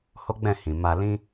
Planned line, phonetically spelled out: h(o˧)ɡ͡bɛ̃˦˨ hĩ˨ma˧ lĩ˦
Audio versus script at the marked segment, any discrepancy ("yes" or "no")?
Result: yes